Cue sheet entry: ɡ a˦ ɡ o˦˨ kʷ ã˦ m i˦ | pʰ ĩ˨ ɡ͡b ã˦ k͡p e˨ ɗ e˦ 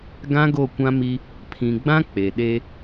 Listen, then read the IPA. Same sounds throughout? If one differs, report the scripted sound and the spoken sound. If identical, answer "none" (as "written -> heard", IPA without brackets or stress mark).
a˦ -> ã˦